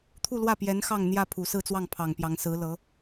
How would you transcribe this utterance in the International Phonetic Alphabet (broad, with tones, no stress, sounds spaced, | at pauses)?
t̪ʰ u˥˧ l w ä˥˩ p j ɛ˧˥ n x ɑ˥˧ ŋ n̪ j ä˥˩ pʰ u˨˩ s ɹ̩˥˧ t͡s w ɑ˥˩ ŋ pʰ ɑ˨˩ ŋ p j ɑ˧˥ ŋ s ɹ̩˧˥ l ɤ˧˥